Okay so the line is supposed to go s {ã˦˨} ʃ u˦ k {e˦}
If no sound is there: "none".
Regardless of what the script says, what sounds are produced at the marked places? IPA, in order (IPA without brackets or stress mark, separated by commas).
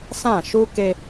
ã˦˨, e˦